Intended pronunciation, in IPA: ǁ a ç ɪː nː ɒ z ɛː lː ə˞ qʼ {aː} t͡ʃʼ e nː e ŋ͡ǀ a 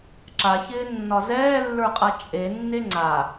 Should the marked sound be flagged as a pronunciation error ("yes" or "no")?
yes